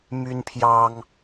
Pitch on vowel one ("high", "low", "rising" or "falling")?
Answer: high